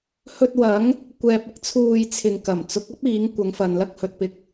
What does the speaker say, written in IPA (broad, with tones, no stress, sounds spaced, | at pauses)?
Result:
h ɵ˧ t̚ w ɐ˨˥ ŋ | kʷ ɛː˧ p̚ ɪ˥ k̚ t͡sʰ uː˧ j t͡sʰ ɪ˨ ŋ k ɐ˨˩ m t͡s ʊ˨˥ k̚ ɐ˥ p̚ iː˨˥ ŋ kʷ ɐ˨˧ ŋ f ɐ˨ n l ɐ˥ k̚ h ɵ˨ t̚ p ɪ˧ k̚